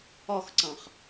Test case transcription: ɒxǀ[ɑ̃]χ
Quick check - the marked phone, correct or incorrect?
correct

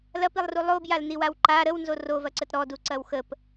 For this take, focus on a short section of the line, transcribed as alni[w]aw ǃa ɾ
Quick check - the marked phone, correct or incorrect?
correct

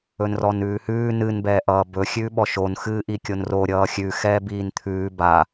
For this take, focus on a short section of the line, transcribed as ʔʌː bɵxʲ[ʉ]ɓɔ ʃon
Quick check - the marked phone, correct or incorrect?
incorrect: ʉː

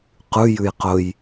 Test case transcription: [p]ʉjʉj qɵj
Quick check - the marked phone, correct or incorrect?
incorrect: q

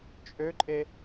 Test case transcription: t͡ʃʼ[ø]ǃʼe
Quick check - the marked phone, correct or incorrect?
correct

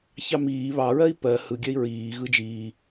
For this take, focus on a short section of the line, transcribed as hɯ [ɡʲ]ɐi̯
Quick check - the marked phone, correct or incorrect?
correct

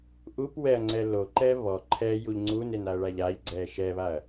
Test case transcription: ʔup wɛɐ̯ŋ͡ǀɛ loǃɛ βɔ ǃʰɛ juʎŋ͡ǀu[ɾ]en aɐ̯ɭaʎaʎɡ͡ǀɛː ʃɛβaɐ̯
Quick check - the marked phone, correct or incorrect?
incorrect: n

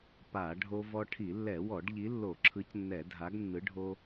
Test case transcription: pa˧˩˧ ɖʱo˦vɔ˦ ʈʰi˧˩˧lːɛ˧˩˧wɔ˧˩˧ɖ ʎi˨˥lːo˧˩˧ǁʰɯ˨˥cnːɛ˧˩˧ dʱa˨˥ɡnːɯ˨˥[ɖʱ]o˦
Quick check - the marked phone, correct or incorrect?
correct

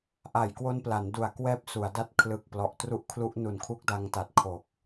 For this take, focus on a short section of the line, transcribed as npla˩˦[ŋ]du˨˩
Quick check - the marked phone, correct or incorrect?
incorrect: n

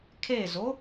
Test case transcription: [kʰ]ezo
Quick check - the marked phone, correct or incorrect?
correct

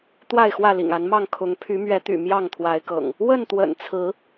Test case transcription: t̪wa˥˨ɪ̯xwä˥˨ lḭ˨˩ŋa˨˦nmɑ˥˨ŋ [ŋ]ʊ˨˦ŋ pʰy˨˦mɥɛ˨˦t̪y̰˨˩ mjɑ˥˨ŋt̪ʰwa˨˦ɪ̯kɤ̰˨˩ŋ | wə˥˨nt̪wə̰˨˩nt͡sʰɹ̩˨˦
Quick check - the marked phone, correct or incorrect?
incorrect: kʰ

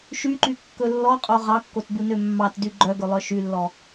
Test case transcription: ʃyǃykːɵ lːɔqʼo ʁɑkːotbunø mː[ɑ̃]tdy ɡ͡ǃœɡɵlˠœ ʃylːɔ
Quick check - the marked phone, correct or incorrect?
incorrect: ɑ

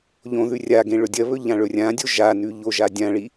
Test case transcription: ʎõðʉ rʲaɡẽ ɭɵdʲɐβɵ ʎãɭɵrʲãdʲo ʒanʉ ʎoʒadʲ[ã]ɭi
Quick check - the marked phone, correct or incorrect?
correct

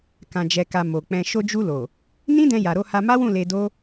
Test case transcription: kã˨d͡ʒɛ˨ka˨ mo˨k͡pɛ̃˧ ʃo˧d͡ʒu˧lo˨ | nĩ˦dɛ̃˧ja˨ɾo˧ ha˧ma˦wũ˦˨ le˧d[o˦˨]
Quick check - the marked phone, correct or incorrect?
incorrect: o˦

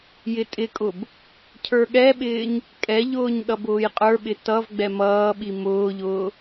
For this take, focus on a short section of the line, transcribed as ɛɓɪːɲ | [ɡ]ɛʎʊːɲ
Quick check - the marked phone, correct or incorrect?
incorrect: kʼ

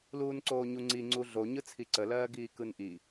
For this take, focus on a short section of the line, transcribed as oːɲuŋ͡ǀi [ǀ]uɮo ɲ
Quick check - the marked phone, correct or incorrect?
incorrect: ŋ͡ǀ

